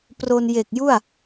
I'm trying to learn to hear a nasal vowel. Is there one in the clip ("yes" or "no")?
no